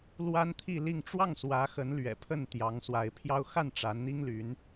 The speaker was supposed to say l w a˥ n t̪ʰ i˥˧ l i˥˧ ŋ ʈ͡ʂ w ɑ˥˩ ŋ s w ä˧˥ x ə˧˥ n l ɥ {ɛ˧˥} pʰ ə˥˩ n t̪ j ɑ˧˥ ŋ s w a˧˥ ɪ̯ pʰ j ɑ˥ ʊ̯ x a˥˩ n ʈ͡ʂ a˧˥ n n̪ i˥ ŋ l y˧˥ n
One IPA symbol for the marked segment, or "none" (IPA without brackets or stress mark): ɛ̰˨˩